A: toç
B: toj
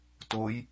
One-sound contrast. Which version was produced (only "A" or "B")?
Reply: B